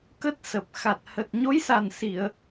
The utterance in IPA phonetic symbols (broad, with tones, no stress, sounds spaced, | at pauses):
k ə˦˥ t̚ s ə˨˩ p̚ x a˨˩ t̚ h ə˨˩ t̚ ɲ o˨˦ j s a˨˩ n s i˧˩˨ ə̯